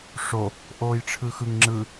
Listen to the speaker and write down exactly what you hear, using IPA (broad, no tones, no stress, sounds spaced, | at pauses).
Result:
ʂ o | ʔ oː j ʈ͡ʂʰ ɯ x ɯ ŋ ŋ͡ǁ ɯ